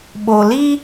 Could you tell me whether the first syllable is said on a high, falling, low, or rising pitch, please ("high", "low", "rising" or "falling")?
low